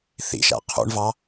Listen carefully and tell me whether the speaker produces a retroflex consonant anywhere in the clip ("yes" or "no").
yes